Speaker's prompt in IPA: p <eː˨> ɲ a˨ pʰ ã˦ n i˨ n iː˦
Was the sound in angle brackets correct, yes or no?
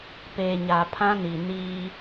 yes